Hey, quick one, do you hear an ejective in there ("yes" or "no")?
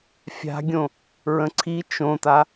no